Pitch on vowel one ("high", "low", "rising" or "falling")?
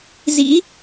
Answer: rising